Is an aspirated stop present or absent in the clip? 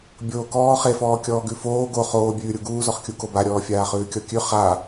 absent